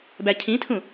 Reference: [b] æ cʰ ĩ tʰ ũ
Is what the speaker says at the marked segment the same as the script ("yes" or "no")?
yes